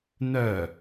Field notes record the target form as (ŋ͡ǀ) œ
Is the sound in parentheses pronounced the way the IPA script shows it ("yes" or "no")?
no